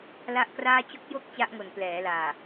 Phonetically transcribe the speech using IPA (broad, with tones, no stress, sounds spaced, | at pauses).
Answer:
l a˥˩ ʔ k r aː˥˩ t͡ɕ o˦˥ k̚ j o˦˥ k̚ t͡ɕ a˦˥ ʔ ŋ o˨˩ n p l ɛː˩˦ l aː˨˩